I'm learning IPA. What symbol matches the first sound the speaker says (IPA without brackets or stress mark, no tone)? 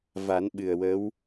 v